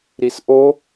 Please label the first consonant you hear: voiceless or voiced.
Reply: voiced